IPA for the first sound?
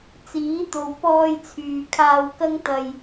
t͡s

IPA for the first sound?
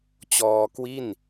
t͡ɕ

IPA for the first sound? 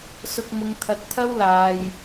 s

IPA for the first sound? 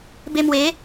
b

